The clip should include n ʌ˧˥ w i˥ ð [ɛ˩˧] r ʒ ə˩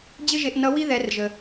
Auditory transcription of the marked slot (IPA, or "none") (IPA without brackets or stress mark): ɛ˩˧